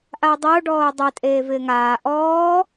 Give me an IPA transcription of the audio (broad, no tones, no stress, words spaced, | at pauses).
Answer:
ʔaʊ̯dˤʊː ɖɔːʊ̯dˤɛ tʼeːvɪːŋaː ʔɔː